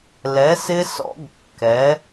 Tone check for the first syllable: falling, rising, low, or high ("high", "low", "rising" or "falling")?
rising